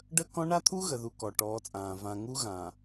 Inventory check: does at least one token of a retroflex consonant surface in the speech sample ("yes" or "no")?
yes